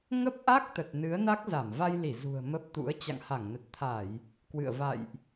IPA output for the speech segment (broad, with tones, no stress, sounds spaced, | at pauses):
ŋ ə˦˥ p̚ ʔ a˦˥ k̚ t̪ ə˨˩ t̚ n ɨ˨˦ ə̯ n a˦˥ k̚ z a˧˩ m v a˧ j l i˧˩ z ṳ˨˩ ə̯ m ə˦˥ p̚ t̪ ṵ˧˥ ə̯ t͡ɕ a̰˧˨ ŋ h a˧˩ ŋ n ə˨˩ t̚ t̪ʰ a˧˩˨ j | k w ɨ̰˧˨ ə̯ v a̰˧˨ j ʔ